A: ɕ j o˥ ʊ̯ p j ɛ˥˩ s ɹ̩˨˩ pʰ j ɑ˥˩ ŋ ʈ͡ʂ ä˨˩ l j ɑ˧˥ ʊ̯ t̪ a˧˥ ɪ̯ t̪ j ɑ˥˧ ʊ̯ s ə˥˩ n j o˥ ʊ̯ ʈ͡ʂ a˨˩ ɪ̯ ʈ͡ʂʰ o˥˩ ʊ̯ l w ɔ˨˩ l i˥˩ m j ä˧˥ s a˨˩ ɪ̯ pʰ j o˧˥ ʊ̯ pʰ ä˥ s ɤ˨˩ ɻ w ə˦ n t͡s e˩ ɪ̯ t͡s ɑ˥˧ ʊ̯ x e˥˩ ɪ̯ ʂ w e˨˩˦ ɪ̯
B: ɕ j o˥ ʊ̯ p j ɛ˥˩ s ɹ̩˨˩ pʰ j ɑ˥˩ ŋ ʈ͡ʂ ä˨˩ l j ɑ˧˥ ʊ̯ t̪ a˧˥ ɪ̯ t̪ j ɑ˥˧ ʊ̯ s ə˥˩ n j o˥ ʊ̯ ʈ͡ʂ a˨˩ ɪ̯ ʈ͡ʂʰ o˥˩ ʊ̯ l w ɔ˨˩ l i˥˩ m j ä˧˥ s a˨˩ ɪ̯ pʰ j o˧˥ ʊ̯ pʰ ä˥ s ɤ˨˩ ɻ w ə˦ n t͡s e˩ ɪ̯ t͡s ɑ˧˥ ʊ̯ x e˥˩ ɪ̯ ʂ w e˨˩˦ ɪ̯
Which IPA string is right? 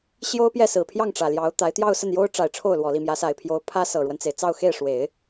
A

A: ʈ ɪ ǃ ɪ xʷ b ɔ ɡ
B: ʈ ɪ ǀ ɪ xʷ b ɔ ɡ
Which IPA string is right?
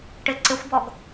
B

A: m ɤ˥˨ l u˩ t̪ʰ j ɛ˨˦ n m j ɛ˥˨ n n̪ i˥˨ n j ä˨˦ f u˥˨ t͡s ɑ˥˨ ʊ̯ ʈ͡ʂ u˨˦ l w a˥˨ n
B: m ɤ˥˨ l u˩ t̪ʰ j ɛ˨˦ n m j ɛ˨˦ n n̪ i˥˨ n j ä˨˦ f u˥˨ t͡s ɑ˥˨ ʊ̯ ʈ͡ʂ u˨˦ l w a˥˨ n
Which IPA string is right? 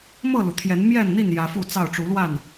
A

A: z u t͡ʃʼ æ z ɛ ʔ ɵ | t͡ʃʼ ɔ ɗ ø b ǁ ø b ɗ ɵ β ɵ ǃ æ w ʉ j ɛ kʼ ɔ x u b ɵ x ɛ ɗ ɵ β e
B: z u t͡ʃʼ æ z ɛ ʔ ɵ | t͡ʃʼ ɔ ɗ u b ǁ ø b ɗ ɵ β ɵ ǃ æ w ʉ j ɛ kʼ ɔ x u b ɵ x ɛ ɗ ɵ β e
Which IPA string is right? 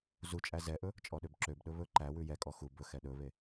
A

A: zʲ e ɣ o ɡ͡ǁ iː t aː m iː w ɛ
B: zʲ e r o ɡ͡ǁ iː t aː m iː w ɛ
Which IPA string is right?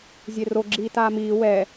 B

